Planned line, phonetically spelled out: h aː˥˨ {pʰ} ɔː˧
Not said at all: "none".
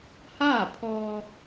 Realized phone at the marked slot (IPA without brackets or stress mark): pʰ